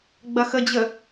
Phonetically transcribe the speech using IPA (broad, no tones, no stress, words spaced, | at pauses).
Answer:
ɡ͡bɐxəd͡ʑə